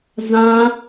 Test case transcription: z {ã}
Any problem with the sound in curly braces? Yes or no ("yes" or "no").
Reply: no